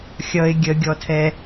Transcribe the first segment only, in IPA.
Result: xʲ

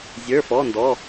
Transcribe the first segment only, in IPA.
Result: zʲ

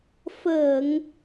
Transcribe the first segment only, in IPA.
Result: f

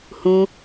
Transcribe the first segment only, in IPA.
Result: h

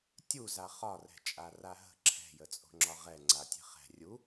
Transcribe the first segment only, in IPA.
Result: tʲ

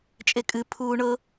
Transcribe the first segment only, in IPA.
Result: t͡ʃʼ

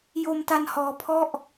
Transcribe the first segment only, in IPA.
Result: j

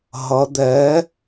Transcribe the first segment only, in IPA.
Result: ɦ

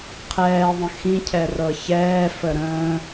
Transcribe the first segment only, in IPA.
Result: qʰ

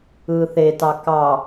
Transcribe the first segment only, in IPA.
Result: ɯː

